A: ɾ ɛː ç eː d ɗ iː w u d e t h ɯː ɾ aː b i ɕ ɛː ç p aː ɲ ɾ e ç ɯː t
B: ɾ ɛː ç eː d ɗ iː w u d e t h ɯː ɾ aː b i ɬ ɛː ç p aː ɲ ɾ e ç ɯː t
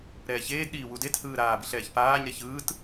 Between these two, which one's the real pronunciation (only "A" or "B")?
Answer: B